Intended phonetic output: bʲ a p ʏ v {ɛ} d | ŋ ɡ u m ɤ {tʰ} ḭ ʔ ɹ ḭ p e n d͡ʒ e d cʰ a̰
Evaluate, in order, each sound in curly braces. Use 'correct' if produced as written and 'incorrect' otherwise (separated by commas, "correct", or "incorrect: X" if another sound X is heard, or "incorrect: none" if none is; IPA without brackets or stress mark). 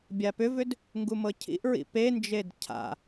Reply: incorrect: ʏ, incorrect: cʰ